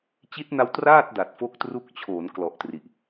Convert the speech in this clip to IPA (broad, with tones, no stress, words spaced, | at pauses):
t͡ɕi˦˥t̚na˦˥w traː˥˩t̚ da˨˩t̚fo˥˩k̚tru˥˩k̚ t͡ɕʰoː˩˦n klɔ˨˩ʔtri˨˩ʔ